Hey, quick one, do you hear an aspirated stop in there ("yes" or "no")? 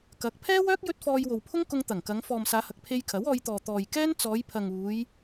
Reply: yes